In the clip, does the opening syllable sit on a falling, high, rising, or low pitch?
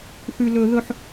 high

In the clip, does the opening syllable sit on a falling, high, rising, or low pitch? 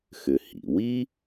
low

